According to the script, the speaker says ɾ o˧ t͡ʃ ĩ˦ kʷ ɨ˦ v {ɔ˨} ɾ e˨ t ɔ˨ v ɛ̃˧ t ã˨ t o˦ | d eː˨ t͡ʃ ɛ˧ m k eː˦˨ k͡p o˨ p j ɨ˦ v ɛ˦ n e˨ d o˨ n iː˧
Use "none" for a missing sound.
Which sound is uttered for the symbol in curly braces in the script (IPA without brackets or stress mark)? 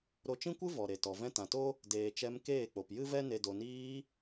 ɔ˨